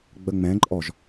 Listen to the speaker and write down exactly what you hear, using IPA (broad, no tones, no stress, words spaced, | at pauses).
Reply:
ɡ͡bəŋ͡mɛ̃ǃʼɔʒ